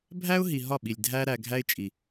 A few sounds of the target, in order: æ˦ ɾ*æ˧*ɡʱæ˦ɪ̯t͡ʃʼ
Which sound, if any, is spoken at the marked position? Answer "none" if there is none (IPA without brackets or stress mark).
æ˧